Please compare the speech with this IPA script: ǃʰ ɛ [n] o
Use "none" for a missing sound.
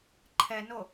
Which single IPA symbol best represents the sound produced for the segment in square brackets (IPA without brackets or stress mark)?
n